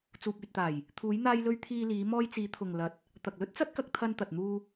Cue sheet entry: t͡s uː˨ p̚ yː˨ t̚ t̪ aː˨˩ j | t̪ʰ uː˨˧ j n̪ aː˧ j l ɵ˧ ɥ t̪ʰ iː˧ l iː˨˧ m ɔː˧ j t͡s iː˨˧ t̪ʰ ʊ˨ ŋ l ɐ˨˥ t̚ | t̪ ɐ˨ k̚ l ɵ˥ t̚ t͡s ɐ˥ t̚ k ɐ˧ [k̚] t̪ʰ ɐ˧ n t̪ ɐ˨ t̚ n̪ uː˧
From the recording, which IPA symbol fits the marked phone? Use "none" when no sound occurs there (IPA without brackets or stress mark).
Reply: k̚